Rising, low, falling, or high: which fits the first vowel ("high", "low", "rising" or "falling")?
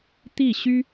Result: falling